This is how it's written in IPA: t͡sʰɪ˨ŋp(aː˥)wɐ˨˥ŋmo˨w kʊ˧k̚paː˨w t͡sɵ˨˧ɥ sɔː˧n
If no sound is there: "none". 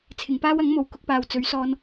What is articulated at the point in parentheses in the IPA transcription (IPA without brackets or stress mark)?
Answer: aː˥